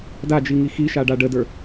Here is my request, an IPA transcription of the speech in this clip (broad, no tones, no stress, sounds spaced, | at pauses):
d a d͡ʒ i ŋ i x i ʃ a ɖ a ɖ ə d ə˞